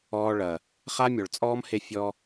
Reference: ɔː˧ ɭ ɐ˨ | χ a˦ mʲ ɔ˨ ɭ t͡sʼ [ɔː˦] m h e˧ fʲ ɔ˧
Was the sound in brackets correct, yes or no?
yes